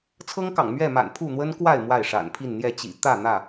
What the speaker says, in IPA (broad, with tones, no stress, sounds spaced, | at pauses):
t͡sʰ ɤ˦ ŋ k ɑ̰˨˩ ŋ m ɥ ɛ˥˨ m a̰˨˩ n pʰ u˥˨ n̪ w ə˦ n k w a˥˨ ɪ̯ m w a˥˨ ɪ̯ ʂ a̰˨˩ n pʰ i˥˨ n n̪ j ɛ˥˨ t͡ɕ ḭ˨˩ t̪ ä˥˨ n̪ ä˥˨